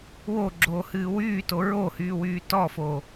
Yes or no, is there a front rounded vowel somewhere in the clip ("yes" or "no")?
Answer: yes